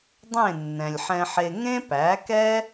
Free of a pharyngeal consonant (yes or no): no